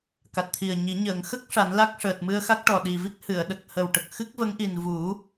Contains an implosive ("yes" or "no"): yes